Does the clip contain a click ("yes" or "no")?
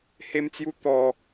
no